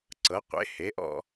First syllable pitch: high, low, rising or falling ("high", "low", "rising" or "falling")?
rising